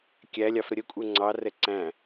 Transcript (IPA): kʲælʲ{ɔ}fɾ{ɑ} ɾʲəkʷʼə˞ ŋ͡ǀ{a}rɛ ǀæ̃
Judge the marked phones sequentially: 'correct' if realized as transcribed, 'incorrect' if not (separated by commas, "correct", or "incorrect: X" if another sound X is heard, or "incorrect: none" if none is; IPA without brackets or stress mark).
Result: incorrect: ɑ, incorrect: ə, incorrect: ɑ